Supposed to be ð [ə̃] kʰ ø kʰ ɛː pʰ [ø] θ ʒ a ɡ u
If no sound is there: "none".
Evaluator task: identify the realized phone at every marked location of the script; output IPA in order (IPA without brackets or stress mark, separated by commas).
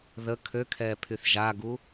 ə, y